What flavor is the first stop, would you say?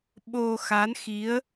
implosive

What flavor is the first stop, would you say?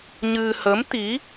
plain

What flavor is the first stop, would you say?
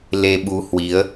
implosive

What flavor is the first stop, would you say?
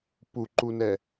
plain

